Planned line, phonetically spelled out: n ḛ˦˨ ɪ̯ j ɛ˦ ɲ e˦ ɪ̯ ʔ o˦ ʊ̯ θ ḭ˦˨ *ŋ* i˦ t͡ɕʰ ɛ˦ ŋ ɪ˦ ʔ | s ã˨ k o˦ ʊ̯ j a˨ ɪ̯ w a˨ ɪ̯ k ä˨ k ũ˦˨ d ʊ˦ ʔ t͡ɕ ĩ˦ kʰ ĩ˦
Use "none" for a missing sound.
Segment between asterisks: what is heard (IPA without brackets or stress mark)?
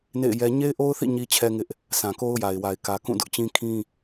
ɲ